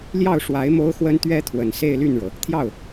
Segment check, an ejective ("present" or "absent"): absent